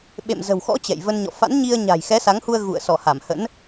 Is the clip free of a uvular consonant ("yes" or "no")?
yes